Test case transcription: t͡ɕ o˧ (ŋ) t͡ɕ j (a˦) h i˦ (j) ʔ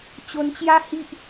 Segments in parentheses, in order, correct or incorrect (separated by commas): incorrect, correct, incorrect